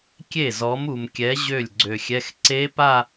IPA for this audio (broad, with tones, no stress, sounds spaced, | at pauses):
kʲ e˥˩ z ɔ˨˥ m u˨ m kʲ ɛ˨˥ ʑ ø˥˩ lʲ ɡ͡ǀ ø˨ xʲ ɛ˧˥˧ x ǀ e˦˥ p a˥˧